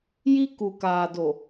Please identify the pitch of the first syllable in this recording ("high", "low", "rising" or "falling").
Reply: high